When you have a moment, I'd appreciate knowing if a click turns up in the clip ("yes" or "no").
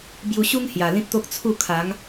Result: no